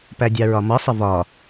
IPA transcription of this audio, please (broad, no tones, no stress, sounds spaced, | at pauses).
p æ dʲ ɑ ɹ ɒ m ʌ sˤ ɪ v ɒ